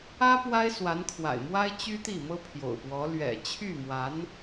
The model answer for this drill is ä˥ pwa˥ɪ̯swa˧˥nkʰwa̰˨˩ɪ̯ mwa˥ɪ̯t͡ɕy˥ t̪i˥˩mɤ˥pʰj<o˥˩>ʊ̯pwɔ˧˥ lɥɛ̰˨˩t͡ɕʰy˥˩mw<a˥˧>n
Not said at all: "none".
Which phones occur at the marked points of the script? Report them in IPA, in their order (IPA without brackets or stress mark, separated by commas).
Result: o̰˨˩, a˧˥